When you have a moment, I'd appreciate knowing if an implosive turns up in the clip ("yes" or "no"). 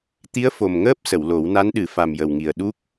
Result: yes